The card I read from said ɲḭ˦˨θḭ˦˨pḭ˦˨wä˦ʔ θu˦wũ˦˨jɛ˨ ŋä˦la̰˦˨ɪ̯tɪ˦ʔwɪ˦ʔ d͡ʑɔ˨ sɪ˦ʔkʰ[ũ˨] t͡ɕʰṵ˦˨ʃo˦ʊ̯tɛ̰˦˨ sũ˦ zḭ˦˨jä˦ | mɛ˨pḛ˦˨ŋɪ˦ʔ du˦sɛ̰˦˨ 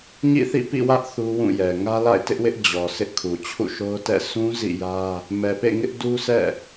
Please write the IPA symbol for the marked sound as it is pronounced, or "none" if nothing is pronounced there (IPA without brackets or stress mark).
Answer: u˨